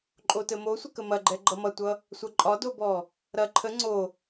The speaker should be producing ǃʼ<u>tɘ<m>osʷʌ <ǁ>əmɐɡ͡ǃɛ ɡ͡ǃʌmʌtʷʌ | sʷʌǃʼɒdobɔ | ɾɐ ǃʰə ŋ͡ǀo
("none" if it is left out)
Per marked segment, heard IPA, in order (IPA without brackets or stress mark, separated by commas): o, m, k